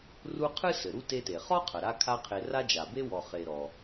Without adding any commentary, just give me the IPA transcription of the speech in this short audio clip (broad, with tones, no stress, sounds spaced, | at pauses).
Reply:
r u˦ qʰ ɨ˥ s ɘ˩ ɾ u˥ t e˦ t e˩ χ ɔ˥ qʰ ɐ˩ ɾ a˦ kʰ a˦ qʰ e˨ r a˥ d͡ʒ a˩ b e˥ w ɔ˨ χ e˨ ɾ ɔ˩